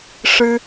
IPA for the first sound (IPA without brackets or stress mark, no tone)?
ʂ